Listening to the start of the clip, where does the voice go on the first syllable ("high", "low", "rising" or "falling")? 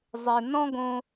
high